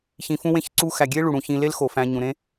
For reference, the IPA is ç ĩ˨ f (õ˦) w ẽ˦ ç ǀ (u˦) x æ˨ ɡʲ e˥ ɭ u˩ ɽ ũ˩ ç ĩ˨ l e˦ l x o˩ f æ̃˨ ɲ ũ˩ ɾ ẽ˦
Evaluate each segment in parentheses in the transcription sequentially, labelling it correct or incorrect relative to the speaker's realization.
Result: incorrect: ũ˦, correct

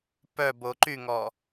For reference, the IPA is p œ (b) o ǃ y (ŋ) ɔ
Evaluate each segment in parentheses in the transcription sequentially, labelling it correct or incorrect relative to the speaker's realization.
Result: correct, correct

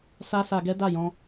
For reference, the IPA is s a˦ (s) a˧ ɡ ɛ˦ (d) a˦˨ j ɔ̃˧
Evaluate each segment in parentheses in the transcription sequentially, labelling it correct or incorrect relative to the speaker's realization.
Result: correct, correct

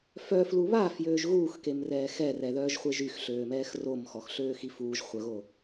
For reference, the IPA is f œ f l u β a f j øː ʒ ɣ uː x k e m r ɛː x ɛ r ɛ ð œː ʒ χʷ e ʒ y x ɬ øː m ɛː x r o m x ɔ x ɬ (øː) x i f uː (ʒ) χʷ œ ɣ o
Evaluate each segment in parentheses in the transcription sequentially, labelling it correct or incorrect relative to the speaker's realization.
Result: correct, correct

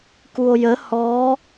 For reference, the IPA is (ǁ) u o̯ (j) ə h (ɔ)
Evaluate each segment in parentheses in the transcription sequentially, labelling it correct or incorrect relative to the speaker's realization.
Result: incorrect: k, correct, correct

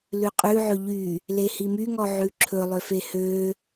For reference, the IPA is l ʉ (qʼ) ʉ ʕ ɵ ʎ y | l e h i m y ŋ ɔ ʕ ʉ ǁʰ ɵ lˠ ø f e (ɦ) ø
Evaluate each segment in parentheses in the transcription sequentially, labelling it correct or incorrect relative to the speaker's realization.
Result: correct, incorrect: h

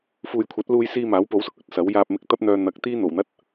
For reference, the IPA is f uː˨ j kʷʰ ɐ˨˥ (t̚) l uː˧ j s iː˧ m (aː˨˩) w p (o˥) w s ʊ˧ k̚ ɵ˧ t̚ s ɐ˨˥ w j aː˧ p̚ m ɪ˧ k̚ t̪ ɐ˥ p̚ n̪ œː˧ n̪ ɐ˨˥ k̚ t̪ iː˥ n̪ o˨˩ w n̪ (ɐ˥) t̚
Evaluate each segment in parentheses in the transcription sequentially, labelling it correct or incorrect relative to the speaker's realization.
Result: correct, incorrect: aː˨˥, incorrect: o˨˥, correct

